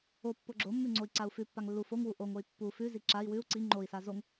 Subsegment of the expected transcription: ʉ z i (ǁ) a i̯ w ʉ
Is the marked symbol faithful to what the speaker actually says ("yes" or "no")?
yes